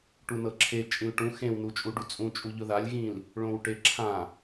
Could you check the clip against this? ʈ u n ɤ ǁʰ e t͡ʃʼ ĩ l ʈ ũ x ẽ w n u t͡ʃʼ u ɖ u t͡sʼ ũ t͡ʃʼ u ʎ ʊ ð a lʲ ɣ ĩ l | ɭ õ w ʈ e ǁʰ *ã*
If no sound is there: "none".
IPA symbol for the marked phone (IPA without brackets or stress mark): ã